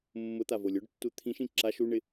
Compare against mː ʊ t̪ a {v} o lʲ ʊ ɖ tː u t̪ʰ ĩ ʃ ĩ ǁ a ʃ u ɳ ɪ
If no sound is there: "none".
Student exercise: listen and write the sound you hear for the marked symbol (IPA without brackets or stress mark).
v